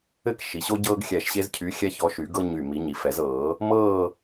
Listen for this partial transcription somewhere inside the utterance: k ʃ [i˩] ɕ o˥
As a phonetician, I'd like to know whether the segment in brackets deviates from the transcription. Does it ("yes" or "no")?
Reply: no